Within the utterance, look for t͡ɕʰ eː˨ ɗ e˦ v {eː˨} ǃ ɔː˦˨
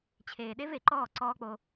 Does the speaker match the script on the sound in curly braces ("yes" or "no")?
no